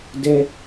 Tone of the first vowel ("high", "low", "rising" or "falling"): high